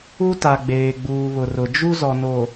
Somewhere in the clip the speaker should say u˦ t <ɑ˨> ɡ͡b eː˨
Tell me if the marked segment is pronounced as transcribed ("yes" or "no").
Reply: no